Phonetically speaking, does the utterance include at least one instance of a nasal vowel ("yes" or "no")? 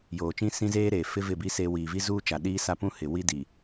yes